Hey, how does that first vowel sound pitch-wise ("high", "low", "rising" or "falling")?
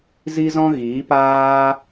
high